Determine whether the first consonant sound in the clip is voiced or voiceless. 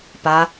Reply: voiceless